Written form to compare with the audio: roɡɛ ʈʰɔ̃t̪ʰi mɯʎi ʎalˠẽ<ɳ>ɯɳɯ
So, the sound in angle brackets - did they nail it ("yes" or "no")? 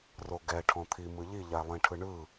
no